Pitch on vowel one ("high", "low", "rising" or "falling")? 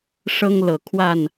high